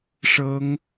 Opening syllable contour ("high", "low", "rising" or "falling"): high